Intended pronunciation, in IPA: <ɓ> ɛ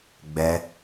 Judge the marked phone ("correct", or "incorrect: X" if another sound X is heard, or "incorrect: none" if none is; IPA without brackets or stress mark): incorrect: ɡ͡b